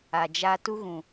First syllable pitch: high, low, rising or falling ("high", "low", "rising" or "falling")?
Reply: low